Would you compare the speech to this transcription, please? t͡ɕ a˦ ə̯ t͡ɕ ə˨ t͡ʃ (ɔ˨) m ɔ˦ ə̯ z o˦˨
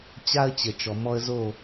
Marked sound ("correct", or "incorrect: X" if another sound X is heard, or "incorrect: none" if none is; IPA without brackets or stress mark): correct